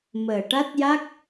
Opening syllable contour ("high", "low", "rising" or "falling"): low